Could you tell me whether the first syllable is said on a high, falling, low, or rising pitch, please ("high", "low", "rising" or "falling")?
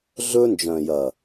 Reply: high